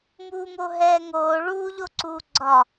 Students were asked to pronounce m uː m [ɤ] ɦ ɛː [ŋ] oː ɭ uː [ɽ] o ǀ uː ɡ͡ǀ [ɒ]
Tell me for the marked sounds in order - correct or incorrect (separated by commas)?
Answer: incorrect, correct, incorrect, correct